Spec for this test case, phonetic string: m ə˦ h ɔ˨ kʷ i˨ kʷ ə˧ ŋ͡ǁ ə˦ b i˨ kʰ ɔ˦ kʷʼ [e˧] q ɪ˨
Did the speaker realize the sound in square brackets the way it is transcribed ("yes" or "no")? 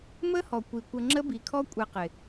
yes